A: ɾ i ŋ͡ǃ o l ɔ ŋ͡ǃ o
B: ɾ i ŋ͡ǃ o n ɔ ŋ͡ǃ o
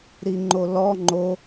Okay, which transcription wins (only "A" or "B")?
A